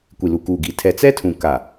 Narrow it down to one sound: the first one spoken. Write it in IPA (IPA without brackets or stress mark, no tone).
kʷ